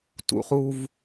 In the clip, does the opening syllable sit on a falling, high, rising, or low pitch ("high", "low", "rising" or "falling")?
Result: low